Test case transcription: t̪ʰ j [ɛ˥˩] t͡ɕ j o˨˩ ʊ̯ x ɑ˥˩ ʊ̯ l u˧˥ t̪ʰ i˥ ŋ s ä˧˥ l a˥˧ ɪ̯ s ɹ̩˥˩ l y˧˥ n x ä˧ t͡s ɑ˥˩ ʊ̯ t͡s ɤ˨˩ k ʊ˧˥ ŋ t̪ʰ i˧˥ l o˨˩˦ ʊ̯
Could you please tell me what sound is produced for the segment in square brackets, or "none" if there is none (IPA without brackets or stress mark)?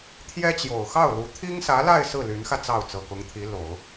ɛ˥